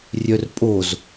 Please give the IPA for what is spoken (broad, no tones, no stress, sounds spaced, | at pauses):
rʲ œ r pʼ o z